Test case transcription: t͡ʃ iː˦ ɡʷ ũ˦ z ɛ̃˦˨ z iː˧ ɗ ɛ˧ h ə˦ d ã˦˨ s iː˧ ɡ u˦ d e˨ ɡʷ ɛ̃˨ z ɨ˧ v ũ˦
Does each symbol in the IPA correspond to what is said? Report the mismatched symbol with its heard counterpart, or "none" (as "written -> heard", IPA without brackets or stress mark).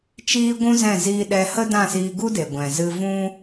none